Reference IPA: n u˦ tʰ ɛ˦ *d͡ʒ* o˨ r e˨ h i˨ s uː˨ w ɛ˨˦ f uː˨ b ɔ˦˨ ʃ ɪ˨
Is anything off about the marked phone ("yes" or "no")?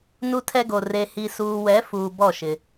yes